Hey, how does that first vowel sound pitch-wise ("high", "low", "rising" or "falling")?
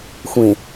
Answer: low